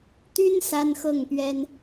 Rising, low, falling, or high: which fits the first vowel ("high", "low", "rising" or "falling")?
high